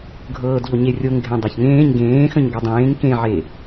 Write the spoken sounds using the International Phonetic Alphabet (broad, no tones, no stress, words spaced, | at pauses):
ɡʱɤːdʎo ɲerʲoŋ ɡʱẽdˤaçŋẽːɲ ɡẽːxə̃ɲ ɡodˤẽːŋ kẽʕe